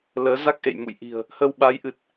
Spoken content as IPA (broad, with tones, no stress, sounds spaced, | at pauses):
l əː˨˦ z a˦˥ k̚ ʔ ḛ˧˨ j m ṵ˧˨ j ʔ i̤˨˩ ə̯ | h ə˧ w ɓ a˨˦ j ʔ ɨ˨˩ t̚